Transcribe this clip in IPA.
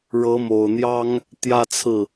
ɻ ɤ˧˥ m o˨˩ ʊ̯ n̪ j ɑ˥ ŋ | t̪ j ä˥˧ t͡sʰ ɹ̩˥˩

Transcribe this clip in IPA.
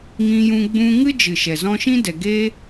ŋ ĩ˧ j ũ˧ ɡ͡b ũ˧ ŋ ɨ˦ d͡ʒ ɨ˨ ʃ ɛ˨ z ɔ̃˧ ʃ ĩ˦ d ɛ˨ ɡ eː˦

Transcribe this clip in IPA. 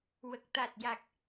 w ə˨˩ k̚ t̪ a˨˩ t̚ j a˨˩ k̚

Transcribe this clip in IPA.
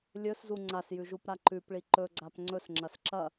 lʲ ɵ s z u ŋ͡ǀ a s j ʉ ʒ u p ɾ a ǃ ʉ p ɭ i ǃ ɵ ɡ͡ǀ a p ŋ͡ǀ ɵ s ŋ͡ǁ ɐ s ǁ ɐ

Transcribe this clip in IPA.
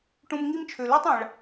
ʈ ũ˧ m ŋ i˥ m t͡ʃʰ ø˩ l i˥ tˤ ã˩ ɭ

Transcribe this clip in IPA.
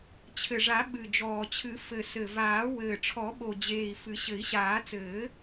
t͡ɕʰ ɘ˨˩ ʐ a˨˩˦ ɓ ɨ˨˩ d͡ʒ ɔː˨˩ t͡ɕʰ ɨ˨˩˦ f ɘ˨˩ s ɘ˨˩ v aː˨˩˦ w ɘː˨˩ ʈ͡ʂʰ ɔ˨˩˦ ɓ o˨˩ d͡ʑ eː˨˩ i̯ f ɨ˨˩˦ ɕ ɘ˨˩˦ i̯ ɕ aː˨˩˦ t͡s ɘː˨˩˦

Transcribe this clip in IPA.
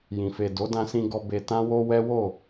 j ĩ˨ f e˨ d o˨˦ d ã˧ s ĩ˧ ɡ ɔ˧ b e˧ t ã˦ w o˦ w ɛ˦ w o˦˨

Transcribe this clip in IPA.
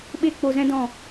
ɓ e˦ k͡p o˧ z ɛ̃˦ d ɔ̃˦˨

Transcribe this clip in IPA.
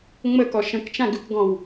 ŋ͡m ə k ɔ ʃ ə̃ k t͡ʃ ã ɡ ʉ k ɡ ɔ̃ w

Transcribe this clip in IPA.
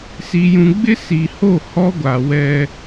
s i˨ j ũ˨ ɡ͡b ɪ˦ s i˨ h o˦˨ h ɔ˦ ɡʷ a˨ w ɛ˦

